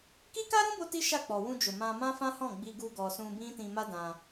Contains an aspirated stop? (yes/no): no